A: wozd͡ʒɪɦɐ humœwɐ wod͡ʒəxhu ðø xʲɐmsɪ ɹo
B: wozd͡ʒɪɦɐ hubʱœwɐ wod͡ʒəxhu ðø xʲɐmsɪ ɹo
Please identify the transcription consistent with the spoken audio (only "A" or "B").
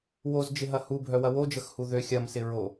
B